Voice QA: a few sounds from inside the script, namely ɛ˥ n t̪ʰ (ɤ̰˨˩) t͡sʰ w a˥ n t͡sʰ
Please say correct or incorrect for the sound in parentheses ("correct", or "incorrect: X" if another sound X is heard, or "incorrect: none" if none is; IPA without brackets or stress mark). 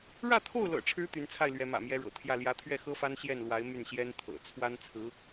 correct